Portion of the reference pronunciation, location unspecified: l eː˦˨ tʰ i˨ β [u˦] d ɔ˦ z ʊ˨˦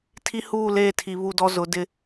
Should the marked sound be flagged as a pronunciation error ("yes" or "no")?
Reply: yes